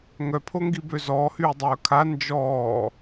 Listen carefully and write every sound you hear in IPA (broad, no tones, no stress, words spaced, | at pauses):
ŋœpʰoŋɡibø zɔːhyːdˤœː kʰa nd͡ʒɔː